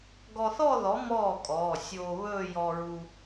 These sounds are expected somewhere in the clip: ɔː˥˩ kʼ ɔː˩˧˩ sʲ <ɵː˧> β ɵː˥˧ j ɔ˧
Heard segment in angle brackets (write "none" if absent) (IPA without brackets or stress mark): oː˧